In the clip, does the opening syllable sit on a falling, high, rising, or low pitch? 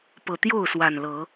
low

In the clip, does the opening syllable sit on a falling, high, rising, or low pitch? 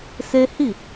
high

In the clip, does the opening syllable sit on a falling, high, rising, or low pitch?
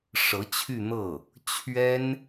rising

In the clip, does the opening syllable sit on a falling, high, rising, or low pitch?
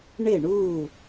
falling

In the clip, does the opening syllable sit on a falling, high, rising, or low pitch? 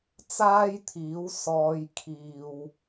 high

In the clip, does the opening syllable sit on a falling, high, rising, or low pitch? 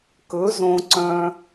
rising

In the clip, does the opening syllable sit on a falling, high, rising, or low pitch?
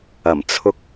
low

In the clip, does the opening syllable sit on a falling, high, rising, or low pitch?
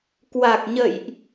low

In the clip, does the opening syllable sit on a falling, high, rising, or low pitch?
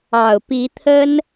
low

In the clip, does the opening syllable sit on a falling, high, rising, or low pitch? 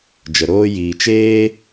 low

